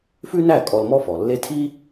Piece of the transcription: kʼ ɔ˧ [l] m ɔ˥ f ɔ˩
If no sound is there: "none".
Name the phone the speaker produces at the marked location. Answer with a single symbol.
l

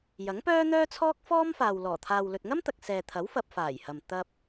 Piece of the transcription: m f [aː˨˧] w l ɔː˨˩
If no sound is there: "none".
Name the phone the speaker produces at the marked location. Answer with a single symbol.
aː˨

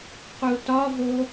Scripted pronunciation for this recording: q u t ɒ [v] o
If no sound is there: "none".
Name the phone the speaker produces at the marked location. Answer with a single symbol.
v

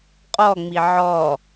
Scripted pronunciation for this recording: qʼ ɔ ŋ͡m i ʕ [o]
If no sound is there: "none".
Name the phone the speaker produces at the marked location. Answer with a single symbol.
ɔ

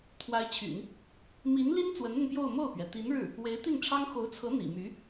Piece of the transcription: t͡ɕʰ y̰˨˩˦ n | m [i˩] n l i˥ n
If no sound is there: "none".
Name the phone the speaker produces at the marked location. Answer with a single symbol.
i˧˥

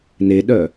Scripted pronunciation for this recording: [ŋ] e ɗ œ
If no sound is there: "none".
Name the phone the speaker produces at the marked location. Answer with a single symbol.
n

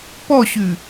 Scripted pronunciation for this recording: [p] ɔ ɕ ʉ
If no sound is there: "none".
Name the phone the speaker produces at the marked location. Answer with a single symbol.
p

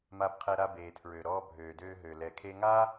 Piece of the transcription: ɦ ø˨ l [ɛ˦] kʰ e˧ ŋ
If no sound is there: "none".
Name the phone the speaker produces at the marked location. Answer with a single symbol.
ɛ˨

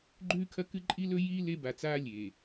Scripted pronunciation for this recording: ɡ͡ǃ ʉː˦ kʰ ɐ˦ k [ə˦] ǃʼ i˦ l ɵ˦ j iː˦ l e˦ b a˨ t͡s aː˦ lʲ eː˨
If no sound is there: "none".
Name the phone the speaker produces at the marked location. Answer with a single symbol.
ɨ˦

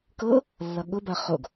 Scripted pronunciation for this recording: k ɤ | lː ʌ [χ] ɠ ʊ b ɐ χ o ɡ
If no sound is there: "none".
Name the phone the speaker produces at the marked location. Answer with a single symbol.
none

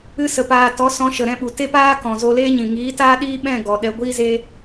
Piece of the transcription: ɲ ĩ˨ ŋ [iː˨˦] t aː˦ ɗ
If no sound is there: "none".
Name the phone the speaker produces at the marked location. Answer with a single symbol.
iː˨˦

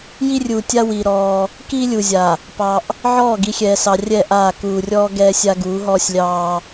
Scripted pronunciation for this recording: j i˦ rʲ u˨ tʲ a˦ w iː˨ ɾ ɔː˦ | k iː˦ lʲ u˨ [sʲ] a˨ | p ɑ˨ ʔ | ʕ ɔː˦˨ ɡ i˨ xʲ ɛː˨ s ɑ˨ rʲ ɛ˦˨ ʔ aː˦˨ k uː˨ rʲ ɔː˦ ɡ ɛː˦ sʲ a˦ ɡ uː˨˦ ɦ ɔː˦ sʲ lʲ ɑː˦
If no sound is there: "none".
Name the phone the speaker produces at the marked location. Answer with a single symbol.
zʲ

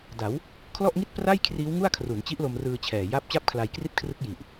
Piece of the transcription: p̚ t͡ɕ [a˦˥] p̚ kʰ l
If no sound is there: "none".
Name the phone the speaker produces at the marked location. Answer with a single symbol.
a˥˩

